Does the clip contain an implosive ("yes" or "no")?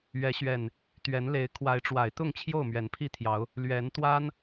no